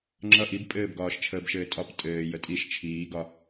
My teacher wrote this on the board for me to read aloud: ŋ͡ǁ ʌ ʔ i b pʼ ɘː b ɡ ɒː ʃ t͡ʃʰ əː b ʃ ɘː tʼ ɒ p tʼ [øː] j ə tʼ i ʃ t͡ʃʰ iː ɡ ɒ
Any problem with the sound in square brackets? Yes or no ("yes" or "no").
yes